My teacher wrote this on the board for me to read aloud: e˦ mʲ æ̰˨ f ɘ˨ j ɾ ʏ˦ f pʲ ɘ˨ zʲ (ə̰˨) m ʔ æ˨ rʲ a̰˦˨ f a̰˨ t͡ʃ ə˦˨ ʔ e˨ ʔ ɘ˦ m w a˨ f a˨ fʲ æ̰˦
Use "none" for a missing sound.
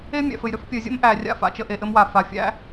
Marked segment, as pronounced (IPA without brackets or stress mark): ə̰˦